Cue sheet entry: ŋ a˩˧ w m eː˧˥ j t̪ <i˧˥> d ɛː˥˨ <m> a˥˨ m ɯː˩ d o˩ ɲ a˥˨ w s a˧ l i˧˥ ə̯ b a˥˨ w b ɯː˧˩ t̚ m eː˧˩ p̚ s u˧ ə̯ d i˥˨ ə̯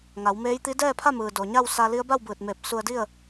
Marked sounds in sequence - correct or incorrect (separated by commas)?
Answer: correct, incorrect